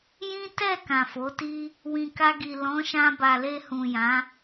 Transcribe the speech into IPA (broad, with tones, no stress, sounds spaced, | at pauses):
j ĩ˦ t ɛ˦˨ k ã˨ f o˨˦ t i˦ | w ĩ˨ k a˧ ɡ i˨ l ɔ̃˨˦ ʃ ã˧ b a˨ l e˧ h ũ˨ j ã˨˦